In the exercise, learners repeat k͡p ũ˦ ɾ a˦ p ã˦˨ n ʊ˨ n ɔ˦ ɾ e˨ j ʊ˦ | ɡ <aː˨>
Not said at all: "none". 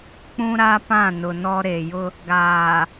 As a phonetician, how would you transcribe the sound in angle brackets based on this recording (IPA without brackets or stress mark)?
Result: aː˨